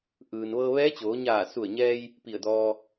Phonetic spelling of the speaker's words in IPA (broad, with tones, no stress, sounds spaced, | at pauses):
ʔ ɯː˩ n ʋ ɤː˧ ʋ ɛː˧˥ t͡ɕ oː˩˧ ɲ aː˧˩ s u˧˩ ə̯ ɲ ɛː˧ j | p i˧˩ ə̯ d ɔː˧